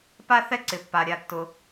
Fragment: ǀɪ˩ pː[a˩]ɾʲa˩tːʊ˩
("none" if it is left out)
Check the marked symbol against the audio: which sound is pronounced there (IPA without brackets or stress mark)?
a˩